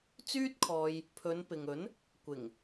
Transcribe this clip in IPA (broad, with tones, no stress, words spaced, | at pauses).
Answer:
t͡syː˥t̚kʰɔː˧j | pʰɵ˨˧n pɪ˨ŋɵ˨˥n | kʷɪ˨˩ŋ